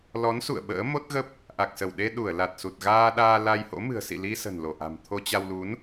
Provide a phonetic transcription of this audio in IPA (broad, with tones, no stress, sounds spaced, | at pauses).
l ɔ˨˦ n s ṵ˧˨ ə̯ ɓ ə̰ː˧˥ m o˦˥ t̚ ɣ ə˦˥ p̚ | ʔ a˨˩ k̚ s ə˧˩ w ɗ e˧ ɗ u˧˩ ə̯ l a˨˩ t̚ s u˨˩ t̚ ɣ aː˧ ɗ aː˧ l a˧ j h o̰˧˥ m ɨ̤˨˩ ə̯ s ḭ˧˨ l i˧ s ə̤˨˩ n l o˧˩ ʔ a̤˨˩ m t̪ʰ o˧ t͡ɕ a˧ w l u˨˦ n